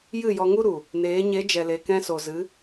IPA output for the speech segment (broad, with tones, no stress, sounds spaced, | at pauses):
j ɨ˦˨ j ɔ˧ ŋ u˦ ɾ u˨ | n eː˨˦ ɲ e˨˦ d͡ʒ ɛ˨ l e˨ k ɛ̃˧ s o˨ z ɨ˨˦